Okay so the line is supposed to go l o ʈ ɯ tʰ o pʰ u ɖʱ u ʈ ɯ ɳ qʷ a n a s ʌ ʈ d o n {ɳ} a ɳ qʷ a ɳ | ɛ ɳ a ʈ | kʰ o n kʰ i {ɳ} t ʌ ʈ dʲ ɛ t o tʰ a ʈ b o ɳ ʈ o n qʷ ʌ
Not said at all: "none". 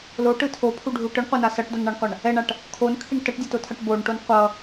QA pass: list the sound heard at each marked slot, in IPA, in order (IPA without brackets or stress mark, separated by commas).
ɳ, ɳ